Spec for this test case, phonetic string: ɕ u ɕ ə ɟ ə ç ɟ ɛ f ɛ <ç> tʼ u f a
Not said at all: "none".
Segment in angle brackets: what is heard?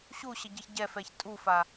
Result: ç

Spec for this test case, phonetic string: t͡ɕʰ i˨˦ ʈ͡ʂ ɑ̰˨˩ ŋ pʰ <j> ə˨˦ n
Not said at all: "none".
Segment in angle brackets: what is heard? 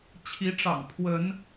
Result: w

